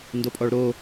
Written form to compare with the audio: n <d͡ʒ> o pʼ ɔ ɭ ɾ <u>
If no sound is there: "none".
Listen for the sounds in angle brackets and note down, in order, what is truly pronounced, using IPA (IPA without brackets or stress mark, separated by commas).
d, o